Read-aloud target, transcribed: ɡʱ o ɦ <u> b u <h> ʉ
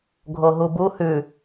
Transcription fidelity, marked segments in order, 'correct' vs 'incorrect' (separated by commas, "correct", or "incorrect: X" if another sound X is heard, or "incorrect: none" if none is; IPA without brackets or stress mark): correct, correct